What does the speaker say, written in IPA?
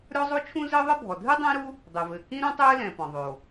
ɾʲ ɔ˥ zˤ o˥ t͡ʃʰ ũ˥ z ɘː˥ ðˤ ɘ˥ bʱ ɔ˩ dʱ ɨ˥ dˤ ẽː˥ ɾ u˥ | dˤ e˩ v ɘː˩ k ĩ˥ ɾ ũ˥ tˤ ɘː˥ l ɛ̃˩ p ɔ̃˩ ðˤ oː˩

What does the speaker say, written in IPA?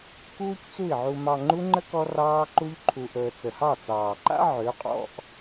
k uː˦ c t͡s u˦˨ i̯ ʕ u˧ m ɑ˧ ŋ͡ǃ u˦ ŋ͡ǃ ə˦ k ɔ˦ r ɑː˦ ǃ u˦ ʎ ǃʰ u˧ ʔ əː˧ t͡s ə˨ h ɑ˦˨ t͡s ɑː˨ ǃ a̰˦ ʕ ø˨˦ qʼ ɔ̰˧ ʔ

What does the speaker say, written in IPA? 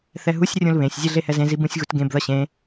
θ ɛ ɦ u sʲ rʲ ũ l β ẽ sʲ zʲ e ɮ e h ɛ z ẽ z i b ũ sʲ ɣ u t ɡ ẽ b ð ʌ ɕ ẽ

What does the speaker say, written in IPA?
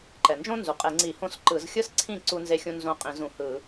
ǃ ɛ˩ n d͡ʒ õ˥ n z u˩ qʼ e˧˩˧ ŋ͡ǀ i˧˩˧ h õ˥˩ s ǃ ɯ˧˩˧ z xʲ ɯ˥ s ǀʰ ĩ˥˩ ǀ u˥ n z e˥ xʲ ũ˥ n z õ˥˩ qʼ ĩ˧˩˧ z ũ˩ h ɯ˧˩˧

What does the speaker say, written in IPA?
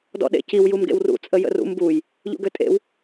d ɔ̰ ɗ ḛ c i w j u m ɡ ḛ w r ṵ t͡sʼ ə j ə̰ r ṵ m b u j | ʎ ṵ ɡ ø tʼ ḛ w

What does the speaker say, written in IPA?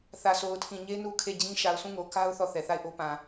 θ ä˨ s o˨ ʊ̯ tʰ ĩ˨ ɲ e˦ n u˦ kʰ e˦˨ d͡ʑ ĩ˦ ʃ a˨ ʊ̯ sʰ ũ˦˨ ŋ o˨ k a˦ ʊ̯ θ ɔ˦˨ θ ɛ˨ θ a˦˨ ɪ̯ ʔ o˦ p ã˨

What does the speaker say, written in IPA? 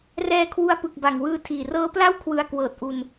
r ɛː˧ kʰ w u˧ a̯ p ɯ˨˩ k̚ b a˨˩ ŋ w ɯː˧ tʰ iː˨˩ r ɤː˦˥ p l a˥˩ w kʰ w ɯ˧ a̯ k w ɤː˨˩ t̚ ʔ u˧ n

